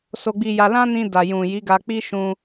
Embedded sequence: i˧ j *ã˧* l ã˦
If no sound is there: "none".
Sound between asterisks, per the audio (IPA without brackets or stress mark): a˧